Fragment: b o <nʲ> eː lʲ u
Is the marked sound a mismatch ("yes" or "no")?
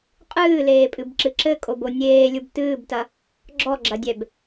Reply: no